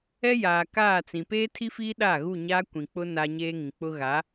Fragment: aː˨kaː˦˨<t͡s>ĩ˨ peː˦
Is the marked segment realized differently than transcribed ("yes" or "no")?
no